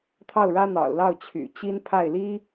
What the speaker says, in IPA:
t̪ʰɑ˥˩ʊ̯ɻä˥n̪ɑ̰˨˩ʊ̯lɑ˥˩ʊ̯ t͡ɕʰy̰˨˩t͡ɕi˥npʰa˥˩ɪ̯ li˥

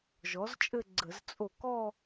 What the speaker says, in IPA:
ʒɔ˩˥z t͡ʃʼɘ˥˧ɡ͡ǀə˧˩˧z t͡sʼo˧˩kɔ˥˧

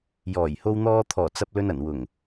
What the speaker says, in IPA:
jɔː˨˩jho˧w n̪ɔː˧t̪ʰɔː˨˩ t͡sɐ˧p̚lɵ˧nɐ˨˩nwʊ˨˩ŋ

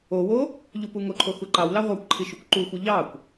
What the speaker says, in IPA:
owo | ʎupuŋoǃʰo xuǃɑwlɑ ʁʷɑkʷǃʰi ʃukʷǃuxʷi ʎɑkʷ

